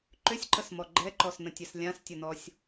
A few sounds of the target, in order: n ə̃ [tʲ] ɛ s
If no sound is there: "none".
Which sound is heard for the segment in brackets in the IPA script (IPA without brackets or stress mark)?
tʲ